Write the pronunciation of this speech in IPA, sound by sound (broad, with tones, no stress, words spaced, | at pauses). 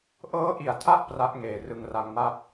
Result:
ʔɤː˦˥ʔi˩˦a̯tʰa˦˥ʔ pra˦˥ʔŋeː˩˦ rɯ˨˩ŋra˧ŋ ma˥˩p̚